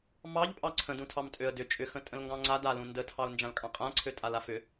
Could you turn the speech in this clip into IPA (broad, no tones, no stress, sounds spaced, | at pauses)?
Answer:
m ɑ ʎ pʼ ɑ ǀʰ ə̃ d ũ tʰ ɑ m tʼ ø ə̯ d ʏ t͡ʃʼ ʏ x ə̃ tʼ ə̃ l ŋ ɡ ɑ̃ ŋ͡ǀ a d a l ũ n d ə tʰ ɑ ʊ̯ n d͡ʒ ã l kʼ ɑ̃ qʼ ã ǀʰ ø tʼ a l a f ʏ